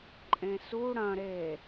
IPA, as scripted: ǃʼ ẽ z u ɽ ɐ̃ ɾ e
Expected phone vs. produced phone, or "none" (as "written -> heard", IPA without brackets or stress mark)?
z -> s